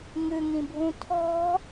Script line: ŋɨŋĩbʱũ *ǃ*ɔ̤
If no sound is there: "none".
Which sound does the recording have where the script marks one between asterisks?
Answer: tʰ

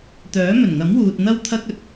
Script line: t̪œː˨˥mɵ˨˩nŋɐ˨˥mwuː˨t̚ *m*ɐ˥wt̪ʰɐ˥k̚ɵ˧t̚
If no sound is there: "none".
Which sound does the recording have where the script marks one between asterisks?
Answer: n̪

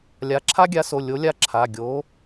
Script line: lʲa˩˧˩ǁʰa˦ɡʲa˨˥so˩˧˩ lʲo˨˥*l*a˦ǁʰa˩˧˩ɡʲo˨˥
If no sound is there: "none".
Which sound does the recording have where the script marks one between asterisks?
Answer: lʲ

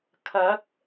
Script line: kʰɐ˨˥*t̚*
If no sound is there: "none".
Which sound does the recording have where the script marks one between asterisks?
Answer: k̚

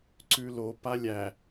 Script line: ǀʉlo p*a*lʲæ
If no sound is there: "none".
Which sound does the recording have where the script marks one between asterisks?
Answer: a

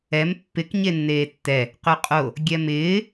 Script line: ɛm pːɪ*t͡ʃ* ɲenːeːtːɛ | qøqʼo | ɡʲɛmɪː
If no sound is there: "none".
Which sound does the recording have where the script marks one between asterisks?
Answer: k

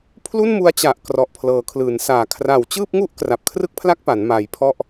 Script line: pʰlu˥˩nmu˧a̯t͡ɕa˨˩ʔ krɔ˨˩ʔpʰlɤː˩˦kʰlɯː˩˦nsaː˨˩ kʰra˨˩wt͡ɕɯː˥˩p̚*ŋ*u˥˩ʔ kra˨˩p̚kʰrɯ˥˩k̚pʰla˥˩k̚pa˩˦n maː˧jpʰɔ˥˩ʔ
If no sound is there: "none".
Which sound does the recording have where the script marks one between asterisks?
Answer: ŋ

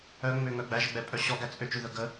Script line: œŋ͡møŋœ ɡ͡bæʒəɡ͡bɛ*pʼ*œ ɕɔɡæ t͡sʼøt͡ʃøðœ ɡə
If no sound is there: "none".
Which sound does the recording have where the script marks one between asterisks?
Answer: pʼ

